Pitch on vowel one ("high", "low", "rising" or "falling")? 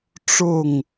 falling